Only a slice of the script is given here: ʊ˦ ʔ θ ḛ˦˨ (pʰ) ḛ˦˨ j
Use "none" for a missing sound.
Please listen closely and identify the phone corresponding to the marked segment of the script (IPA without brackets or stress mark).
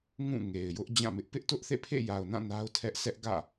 pʰ